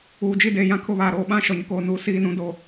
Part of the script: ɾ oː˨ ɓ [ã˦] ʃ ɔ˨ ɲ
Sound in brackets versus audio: correct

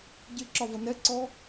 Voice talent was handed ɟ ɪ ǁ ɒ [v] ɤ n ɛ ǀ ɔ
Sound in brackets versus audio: correct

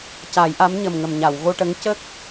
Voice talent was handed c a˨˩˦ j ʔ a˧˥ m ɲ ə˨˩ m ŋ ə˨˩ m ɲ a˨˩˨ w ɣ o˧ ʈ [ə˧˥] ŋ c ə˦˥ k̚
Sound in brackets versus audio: correct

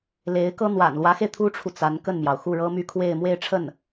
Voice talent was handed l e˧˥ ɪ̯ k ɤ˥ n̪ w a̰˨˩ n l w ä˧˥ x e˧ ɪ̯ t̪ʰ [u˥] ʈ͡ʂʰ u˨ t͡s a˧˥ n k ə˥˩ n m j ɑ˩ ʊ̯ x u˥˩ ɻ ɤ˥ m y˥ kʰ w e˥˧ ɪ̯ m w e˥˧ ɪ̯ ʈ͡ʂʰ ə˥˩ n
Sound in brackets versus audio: correct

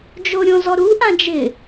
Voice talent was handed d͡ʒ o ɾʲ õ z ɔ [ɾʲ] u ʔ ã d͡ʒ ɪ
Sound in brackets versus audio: incorrect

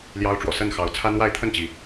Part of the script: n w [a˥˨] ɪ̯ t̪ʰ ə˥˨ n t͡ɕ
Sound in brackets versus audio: correct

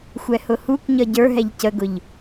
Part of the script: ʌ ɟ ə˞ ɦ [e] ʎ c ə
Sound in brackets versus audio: incorrect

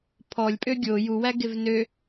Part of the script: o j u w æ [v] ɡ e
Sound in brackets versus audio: incorrect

